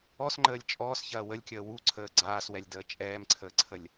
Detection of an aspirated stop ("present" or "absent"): present